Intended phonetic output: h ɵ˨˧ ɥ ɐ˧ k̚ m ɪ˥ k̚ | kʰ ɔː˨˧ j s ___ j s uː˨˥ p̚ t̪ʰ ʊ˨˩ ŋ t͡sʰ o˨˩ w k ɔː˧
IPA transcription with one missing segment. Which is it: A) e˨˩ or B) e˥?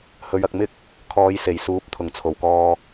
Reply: A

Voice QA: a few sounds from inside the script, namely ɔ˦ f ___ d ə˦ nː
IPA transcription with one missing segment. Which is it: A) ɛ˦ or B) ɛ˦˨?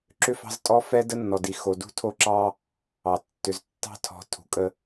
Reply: A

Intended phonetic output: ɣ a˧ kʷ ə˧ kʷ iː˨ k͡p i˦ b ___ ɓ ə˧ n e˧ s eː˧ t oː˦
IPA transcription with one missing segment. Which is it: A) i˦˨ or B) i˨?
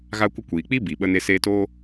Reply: B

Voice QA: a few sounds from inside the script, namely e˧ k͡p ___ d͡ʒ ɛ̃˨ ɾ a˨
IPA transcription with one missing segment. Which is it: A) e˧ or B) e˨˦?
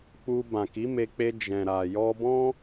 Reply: A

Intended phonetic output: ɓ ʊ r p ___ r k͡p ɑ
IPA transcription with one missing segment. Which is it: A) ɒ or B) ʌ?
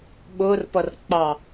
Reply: B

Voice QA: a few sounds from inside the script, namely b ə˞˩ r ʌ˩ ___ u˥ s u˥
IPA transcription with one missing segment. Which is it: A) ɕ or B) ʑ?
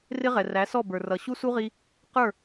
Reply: A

